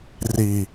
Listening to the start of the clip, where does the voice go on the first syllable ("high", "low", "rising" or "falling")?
low